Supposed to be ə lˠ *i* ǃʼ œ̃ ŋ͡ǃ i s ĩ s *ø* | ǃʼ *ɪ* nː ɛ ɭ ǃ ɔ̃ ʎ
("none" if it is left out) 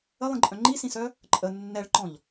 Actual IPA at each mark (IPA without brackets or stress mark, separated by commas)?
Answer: ĩ, œ, ə